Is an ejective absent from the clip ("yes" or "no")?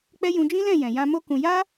yes